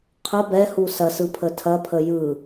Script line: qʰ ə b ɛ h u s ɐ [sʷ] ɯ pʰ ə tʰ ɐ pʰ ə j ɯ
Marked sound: incorrect: s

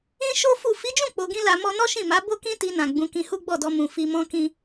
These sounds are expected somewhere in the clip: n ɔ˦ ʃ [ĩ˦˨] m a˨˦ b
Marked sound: correct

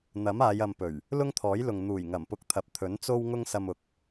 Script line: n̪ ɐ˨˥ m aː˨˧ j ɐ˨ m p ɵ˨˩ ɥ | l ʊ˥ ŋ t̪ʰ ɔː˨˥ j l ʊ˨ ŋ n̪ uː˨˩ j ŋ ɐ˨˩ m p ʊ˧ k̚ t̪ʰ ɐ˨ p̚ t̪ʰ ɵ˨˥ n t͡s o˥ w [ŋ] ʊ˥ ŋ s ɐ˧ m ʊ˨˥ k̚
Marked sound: correct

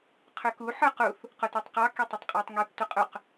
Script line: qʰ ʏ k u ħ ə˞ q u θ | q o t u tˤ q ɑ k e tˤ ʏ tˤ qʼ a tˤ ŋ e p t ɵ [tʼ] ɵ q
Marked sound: incorrect: qʼ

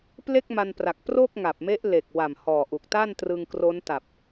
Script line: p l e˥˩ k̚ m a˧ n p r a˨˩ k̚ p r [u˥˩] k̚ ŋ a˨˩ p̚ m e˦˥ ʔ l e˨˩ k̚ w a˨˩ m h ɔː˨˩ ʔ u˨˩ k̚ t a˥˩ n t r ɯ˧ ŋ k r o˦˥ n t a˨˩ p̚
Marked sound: incorrect: o˥˩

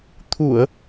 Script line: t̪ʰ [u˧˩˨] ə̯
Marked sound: correct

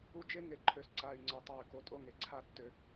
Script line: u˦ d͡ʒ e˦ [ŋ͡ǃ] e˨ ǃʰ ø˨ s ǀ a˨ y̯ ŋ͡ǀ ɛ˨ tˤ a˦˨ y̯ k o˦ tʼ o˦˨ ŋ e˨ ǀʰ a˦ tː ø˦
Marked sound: incorrect: ŋ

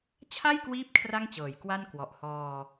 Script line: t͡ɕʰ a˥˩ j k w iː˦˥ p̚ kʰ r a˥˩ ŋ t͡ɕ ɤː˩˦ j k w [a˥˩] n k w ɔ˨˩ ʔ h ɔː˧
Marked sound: correct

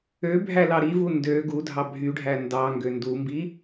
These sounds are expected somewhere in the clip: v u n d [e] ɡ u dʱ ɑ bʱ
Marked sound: incorrect: ø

